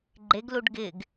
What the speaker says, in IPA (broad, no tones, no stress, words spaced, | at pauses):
ɡ͡ǃeɡluɖ ɡɪɡ